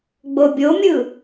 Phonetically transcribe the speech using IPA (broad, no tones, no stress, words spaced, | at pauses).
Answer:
ɡ͡bobʲomʲɯ